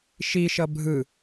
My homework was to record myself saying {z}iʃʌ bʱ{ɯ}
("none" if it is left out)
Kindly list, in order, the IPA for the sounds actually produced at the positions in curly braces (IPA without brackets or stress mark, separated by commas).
ʃ, ɯ